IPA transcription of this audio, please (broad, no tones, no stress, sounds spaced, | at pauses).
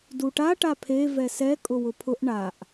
d u ʈ a ʈ a pʰ e v ɛ s ɛ kʼ ʊ w ʊ pʰ ʊ ʔ ɳ a ʔ